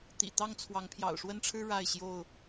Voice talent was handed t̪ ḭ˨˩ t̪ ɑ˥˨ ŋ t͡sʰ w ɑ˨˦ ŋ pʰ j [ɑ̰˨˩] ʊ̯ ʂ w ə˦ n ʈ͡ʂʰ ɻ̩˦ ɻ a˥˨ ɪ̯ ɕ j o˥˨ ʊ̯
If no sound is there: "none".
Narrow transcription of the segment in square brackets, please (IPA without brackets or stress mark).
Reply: ɑ̰˨˩